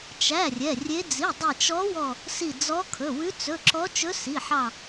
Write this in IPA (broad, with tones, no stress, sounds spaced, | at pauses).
t͡ʃ æ˩˧˩ rʲ ɛ˩˧˩ rʲ e˧˥ d͡z i˩˧˩ dˤ i˧˩ t͡ʃ ɔ˧˥ w ɔ˧˩ | s i˧˩ d͡z ɔ˧˥ kʰ ɵ˩˧˩ w ʉ˧˥ t͡s ɵ˩˧˩ ǁ ɔ˧˥ t͡ʃ ɵ˧˥ s i˩˧˩ ħ ɑ˧˩